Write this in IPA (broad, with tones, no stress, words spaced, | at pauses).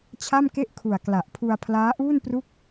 t͡ɕʰa˥˩mke˥˩ʔkʰu˨˩a̯ kla˨˩ʔ pʰu˧a̯ pʰlaː˦˥ʔuː˥˩npru˦˥k̚